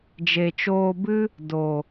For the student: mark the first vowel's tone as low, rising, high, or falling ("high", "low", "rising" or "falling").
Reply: low